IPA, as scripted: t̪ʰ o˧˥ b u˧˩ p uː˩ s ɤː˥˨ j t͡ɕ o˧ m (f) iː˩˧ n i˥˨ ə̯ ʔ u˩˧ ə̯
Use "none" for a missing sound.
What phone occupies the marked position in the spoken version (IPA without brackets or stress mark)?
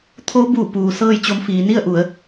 f